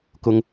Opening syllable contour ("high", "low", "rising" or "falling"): high